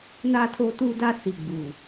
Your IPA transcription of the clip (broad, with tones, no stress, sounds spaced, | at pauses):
n a˦ tʰ o˦ t u˦ d a˦ s i˨ ɡ͡b u˨